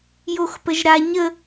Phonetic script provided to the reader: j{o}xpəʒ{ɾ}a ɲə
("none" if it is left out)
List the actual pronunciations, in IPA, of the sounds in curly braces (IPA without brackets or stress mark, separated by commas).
o, ɾ